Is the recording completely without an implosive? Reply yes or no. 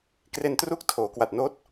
yes